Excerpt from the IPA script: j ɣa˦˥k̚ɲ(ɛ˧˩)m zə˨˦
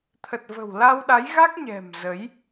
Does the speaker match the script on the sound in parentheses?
no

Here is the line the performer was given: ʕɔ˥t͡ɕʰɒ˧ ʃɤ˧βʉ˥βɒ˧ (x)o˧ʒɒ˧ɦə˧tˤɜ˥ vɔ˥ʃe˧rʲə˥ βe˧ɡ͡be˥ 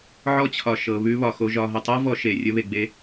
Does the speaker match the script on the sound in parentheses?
yes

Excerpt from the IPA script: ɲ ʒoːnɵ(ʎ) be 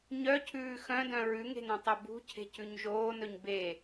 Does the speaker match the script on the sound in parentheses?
no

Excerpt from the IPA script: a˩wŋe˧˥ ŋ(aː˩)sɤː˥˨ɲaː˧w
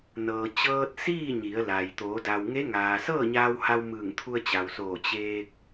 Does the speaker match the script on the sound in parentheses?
yes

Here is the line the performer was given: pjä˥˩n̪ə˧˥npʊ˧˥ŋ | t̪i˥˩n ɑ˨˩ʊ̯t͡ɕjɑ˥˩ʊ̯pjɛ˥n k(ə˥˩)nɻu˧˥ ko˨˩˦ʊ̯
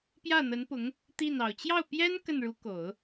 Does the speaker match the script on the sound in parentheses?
yes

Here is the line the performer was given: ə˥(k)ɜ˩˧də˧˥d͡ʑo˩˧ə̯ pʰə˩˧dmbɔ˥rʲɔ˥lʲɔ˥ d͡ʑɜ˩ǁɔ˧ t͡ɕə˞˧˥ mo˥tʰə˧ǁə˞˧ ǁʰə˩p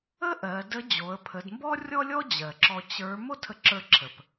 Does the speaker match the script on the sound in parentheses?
no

